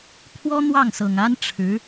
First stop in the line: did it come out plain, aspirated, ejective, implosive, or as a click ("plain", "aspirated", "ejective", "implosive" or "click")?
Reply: aspirated